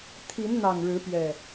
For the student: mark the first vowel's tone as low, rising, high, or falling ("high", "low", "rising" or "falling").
rising